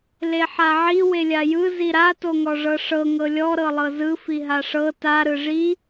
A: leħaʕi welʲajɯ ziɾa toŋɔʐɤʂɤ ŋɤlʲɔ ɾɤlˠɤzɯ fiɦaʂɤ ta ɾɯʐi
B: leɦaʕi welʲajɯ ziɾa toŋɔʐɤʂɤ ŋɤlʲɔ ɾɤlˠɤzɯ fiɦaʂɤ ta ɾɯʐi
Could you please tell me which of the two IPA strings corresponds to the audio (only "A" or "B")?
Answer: A